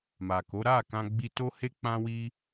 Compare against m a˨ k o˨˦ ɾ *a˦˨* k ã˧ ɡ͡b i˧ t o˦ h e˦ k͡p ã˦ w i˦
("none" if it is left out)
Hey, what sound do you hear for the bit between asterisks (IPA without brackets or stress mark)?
a˦˨